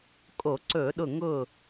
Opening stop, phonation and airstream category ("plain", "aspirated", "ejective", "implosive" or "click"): ejective